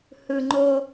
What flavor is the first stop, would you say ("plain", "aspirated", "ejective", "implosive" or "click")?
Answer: click